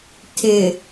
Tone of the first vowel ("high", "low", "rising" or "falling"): low